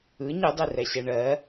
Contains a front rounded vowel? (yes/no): no